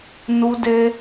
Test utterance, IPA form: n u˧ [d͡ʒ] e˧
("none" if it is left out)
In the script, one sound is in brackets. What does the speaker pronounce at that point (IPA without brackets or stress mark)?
d